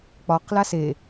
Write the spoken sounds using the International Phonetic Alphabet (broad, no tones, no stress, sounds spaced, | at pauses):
k͡p ɒ q l a s e